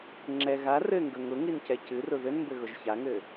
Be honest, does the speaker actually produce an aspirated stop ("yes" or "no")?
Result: no